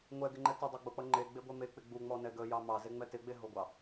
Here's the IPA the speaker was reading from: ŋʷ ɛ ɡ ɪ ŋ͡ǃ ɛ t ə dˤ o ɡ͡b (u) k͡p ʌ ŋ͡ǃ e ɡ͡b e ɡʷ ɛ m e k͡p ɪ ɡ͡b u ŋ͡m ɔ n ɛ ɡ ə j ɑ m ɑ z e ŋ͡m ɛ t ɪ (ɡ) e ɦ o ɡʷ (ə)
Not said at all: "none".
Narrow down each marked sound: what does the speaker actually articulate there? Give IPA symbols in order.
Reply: o, ɡ͡b, ɑ

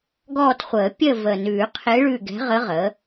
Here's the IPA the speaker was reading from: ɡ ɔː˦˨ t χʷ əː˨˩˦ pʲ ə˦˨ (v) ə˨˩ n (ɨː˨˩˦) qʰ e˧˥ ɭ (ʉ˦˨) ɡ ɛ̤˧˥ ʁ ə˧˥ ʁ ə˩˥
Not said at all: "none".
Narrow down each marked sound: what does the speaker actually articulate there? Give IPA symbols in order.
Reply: v, ʉː˨˩˦, ʉ˦˨

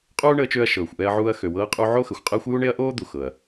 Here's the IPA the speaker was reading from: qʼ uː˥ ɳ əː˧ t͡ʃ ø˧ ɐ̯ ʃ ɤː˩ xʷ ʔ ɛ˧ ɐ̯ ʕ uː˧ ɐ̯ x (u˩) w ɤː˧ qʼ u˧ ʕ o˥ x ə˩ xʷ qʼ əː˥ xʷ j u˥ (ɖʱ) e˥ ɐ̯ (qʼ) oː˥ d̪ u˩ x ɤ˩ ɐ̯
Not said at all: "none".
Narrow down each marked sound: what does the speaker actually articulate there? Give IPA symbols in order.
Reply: ø˩, ɳ, ʔ

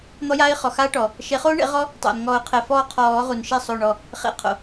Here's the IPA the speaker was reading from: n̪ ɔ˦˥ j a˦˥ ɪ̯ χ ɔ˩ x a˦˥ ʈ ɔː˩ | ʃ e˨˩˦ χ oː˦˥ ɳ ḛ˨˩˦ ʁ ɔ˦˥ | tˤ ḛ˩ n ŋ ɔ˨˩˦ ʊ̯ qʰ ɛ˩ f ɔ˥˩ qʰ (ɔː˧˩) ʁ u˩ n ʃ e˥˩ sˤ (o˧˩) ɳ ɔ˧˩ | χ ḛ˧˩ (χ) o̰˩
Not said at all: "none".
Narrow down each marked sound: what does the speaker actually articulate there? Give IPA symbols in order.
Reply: ɔː˨˩˦, o˧˩, qʰ

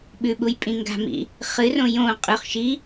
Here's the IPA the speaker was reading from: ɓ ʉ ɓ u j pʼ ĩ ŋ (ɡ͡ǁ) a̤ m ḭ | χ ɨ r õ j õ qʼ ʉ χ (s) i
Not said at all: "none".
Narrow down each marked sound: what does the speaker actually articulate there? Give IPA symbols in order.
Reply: ɡ, ʃ

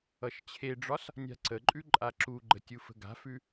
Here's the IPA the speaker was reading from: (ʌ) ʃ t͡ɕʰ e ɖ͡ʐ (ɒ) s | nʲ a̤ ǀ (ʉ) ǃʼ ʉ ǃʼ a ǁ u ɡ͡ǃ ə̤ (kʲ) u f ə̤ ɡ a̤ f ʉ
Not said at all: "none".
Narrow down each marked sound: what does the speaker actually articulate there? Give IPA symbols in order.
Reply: ʌ, ɒ, ə, tʲ

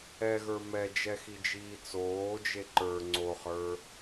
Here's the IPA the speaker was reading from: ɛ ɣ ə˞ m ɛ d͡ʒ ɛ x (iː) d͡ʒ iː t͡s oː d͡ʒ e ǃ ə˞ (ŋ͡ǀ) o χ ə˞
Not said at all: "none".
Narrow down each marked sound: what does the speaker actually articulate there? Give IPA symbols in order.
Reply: i, ŋ͡ǀ

